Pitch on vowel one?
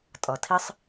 low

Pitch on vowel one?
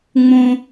high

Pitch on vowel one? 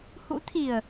rising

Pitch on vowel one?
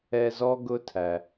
high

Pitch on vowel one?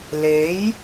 rising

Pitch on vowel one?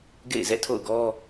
falling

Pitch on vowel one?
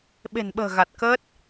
low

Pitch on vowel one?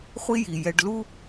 high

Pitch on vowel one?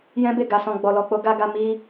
high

